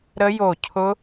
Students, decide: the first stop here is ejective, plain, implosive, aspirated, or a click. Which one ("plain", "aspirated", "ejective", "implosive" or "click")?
aspirated